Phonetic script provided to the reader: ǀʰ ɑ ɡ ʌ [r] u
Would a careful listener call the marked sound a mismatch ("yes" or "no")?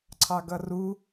no